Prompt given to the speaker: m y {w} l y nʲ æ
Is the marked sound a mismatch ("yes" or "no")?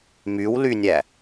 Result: no